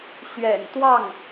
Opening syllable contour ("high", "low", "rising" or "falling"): low